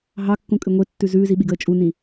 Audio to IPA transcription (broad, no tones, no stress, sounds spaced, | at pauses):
ɦ ɑ kː ũ kʼ ɨ ŋʷ e tː ʉ z ʉː z i ɓ i ɡ əː t͡ʃʼ u n ĩ